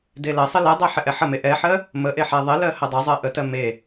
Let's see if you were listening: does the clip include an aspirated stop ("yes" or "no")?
no